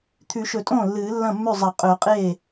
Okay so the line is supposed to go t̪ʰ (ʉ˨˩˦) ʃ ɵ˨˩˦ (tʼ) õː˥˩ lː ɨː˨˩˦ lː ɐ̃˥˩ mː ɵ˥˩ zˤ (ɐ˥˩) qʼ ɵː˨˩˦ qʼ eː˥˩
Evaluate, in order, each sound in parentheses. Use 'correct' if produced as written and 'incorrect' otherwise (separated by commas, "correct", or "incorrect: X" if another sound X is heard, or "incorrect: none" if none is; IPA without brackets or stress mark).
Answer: correct, correct, incorrect: ɐ˨˩˦